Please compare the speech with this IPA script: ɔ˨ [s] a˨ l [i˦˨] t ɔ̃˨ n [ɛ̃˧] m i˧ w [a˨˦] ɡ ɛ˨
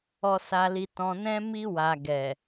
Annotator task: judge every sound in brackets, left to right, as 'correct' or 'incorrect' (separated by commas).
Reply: correct, incorrect, correct, incorrect